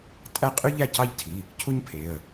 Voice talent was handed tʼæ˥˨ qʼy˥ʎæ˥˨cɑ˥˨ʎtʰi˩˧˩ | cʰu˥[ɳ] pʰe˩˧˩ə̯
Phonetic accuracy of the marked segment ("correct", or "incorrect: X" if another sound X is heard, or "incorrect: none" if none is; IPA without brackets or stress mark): incorrect: ɲ